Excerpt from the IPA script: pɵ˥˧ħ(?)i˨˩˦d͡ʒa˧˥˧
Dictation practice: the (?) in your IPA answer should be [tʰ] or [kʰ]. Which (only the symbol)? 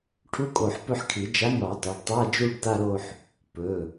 kʰ